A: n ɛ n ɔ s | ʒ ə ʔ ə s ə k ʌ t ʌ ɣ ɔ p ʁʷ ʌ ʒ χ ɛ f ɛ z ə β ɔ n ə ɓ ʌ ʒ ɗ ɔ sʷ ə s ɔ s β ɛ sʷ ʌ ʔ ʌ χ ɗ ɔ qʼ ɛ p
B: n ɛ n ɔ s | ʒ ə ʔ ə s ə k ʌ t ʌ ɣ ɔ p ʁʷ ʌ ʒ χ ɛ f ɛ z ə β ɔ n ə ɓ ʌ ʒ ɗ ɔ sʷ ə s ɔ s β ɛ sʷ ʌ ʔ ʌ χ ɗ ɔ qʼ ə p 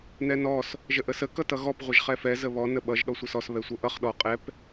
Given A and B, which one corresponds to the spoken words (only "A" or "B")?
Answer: A